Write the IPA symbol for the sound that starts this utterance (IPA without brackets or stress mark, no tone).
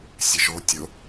sʲ